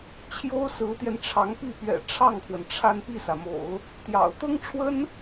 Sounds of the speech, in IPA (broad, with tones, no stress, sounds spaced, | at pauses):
t͡ɕʰ j o˥ ʊ̯ s ɹ̩˧˥ t̪ j ɛ˧ n ʈ͡ʂʰ ɑ˧˥ ŋ p i˥˩ p ɥ ɛ̰˨˩ ʈ͡ʂʰ ɑ˥˩ ŋ kʰ w ə˩ n ʈ͡ʂʰ a˥˧ n p i˥˩ s ä˩ m o̰˨˩˦ ʊ̯ | t̪ j ɑ̰˨˩ ʊ̯ t̪ ɤ˥ ŋ ʈ͡ʂʰ w ə˥ n